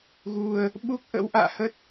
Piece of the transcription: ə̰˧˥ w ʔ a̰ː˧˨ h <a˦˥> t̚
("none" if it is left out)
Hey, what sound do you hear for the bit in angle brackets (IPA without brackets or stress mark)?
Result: ə˦˥